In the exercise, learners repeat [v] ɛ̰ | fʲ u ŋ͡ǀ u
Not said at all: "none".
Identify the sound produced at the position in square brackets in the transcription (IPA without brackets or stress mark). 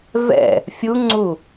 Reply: v